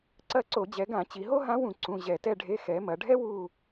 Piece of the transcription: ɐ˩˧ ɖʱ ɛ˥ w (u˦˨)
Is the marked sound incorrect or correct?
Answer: correct